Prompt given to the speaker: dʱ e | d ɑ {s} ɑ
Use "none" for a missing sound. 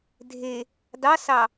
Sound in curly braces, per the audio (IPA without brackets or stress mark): s